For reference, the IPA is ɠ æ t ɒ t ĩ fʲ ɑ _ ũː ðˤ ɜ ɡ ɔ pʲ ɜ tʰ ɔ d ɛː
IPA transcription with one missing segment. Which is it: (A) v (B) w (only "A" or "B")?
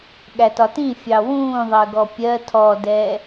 B